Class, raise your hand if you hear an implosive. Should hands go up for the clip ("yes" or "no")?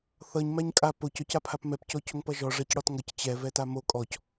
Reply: no